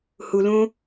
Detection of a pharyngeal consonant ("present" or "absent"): absent